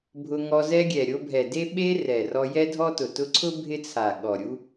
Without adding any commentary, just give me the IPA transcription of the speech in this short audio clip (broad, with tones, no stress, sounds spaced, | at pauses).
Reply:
bʱ ʊ˧ ŋ ɔ˧ z ɛ˧ ɡʲ ɛ˨ ɾʲ o˧ bʱ ɛ˨ d e˦ ɓ e˧ r ɛ˨ r ɔ˧ j ɛ˦ dʱ ɔ˦ t ʊ˨ t ʊ˧ ǀʰ ʊ˦ bʱ ɪ˦ t͡sʰ a˨ ɠ ɔ˨ ɾʲ u˦